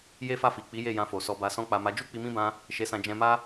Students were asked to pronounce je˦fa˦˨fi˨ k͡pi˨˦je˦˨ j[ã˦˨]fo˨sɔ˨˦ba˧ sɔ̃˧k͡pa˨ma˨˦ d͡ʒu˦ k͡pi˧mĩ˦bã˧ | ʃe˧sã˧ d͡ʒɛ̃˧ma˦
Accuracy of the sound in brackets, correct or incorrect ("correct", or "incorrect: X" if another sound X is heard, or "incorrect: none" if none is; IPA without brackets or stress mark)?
incorrect: ã˧